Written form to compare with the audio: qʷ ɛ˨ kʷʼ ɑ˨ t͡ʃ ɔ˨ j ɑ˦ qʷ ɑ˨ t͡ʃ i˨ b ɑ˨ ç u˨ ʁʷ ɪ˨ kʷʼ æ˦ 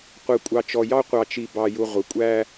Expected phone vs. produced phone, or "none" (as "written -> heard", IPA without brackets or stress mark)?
ç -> j